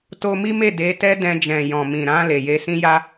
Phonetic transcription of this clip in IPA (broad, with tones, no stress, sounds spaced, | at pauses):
t o˧ m i˦ m e˦˨ d e˨˦ t ɛ˦ d ɛ̃˧ d͡ʒ ɛ̃˨ j ɔ̃˨ m ĩ˨ ɾ ã˧ l e˨ j e˧ s ĩ˦ j a˦